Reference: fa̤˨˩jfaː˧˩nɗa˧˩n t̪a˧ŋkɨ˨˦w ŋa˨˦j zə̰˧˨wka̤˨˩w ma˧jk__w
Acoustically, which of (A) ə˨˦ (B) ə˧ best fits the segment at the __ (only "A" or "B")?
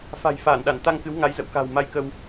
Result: B